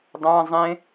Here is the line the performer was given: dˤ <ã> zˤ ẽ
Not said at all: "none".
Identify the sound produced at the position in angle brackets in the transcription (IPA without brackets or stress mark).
ã